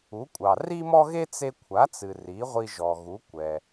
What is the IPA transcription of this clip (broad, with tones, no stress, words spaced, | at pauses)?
u˩˥kʷʼɑ˩ ri˥mɔ˥ɣe˥ t͡se˧kʷʰa˩˥t͡sɨ˩ ri˩˥ʁʷi˧ʒɔ˩ɣu˩˥ kʷɛ˩